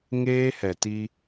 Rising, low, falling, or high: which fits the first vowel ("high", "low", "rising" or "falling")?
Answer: high